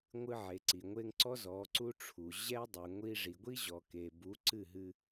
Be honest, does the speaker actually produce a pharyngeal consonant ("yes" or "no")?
yes